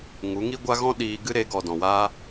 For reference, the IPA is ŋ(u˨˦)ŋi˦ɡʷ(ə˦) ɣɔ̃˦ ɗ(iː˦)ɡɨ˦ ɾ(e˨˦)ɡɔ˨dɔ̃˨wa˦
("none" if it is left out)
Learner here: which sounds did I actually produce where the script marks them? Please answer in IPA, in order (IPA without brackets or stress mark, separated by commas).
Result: u˨˦, a˦, iː˧, e˨˦